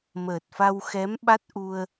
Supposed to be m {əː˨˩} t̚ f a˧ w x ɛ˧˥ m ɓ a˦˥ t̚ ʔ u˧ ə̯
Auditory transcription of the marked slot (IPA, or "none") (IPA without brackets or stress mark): əː˨˩